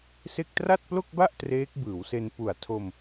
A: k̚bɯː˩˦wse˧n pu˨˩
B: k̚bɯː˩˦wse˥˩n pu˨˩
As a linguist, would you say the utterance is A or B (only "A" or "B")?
A